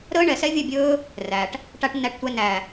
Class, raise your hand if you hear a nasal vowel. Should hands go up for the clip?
no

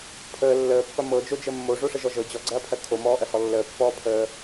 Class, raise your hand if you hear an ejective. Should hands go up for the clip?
no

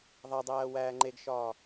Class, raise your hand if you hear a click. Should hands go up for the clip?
yes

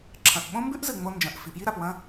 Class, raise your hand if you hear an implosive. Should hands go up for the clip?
yes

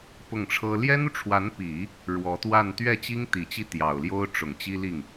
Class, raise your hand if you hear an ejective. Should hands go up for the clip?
no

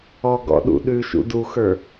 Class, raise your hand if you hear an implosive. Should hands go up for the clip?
yes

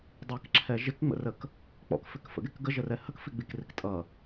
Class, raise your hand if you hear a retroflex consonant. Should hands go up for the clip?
no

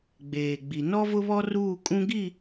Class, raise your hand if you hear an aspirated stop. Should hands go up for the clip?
no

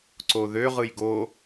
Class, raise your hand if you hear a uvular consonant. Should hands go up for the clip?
yes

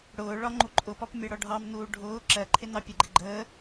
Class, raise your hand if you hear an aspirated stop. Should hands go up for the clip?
yes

